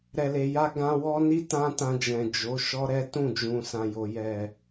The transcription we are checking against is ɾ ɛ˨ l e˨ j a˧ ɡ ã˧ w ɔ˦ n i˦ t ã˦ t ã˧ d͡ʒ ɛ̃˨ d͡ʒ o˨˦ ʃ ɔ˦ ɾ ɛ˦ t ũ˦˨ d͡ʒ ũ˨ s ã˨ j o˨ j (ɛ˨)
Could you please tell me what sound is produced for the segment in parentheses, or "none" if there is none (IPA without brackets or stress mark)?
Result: ɛ˨